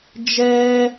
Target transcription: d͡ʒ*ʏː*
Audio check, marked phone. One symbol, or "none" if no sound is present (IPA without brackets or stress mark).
ɛː